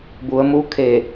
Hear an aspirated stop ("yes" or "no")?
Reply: yes